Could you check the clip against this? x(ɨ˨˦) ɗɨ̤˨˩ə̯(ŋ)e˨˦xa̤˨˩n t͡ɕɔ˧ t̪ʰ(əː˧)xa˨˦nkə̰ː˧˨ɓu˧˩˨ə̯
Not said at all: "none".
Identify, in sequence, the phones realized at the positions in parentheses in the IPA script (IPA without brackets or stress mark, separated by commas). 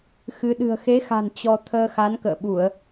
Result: ɨ˨˦, x, əː˧